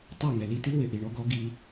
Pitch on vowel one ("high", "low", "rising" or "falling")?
falling